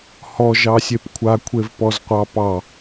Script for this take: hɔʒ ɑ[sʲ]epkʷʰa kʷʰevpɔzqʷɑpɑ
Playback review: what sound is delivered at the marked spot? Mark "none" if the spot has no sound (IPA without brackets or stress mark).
sʲ